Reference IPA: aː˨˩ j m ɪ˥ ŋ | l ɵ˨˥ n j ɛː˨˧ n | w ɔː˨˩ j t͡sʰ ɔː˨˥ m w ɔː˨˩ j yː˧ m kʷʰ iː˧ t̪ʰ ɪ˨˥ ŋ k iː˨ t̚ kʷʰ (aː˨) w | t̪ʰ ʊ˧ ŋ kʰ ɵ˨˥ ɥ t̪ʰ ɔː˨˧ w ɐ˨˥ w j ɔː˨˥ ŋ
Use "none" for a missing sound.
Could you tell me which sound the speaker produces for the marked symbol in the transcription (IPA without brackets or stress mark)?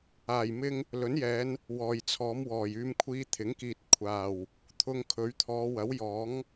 aː˨˩